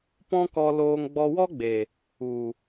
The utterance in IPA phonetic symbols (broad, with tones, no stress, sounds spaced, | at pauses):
p ɔ̃˦ k ɔ˧ l oː˧ ŋ ɡ͡b ɔ˧ w ɔ˦ ɡ͡b e˨ | u˨